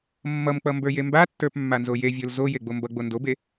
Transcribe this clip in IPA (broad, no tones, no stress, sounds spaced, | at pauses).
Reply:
mː ʌ m k͡p ʌ m b ə˞ j e m b a tː ə˞ p mː a n z o j e vʲ o l z o j e ɡ͡b o m b ʌ ɡ͡b o n d o b e